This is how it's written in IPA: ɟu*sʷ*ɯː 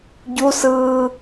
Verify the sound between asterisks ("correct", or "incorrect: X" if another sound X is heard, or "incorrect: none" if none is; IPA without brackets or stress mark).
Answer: incorrect: s